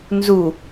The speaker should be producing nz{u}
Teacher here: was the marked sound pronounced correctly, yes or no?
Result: yes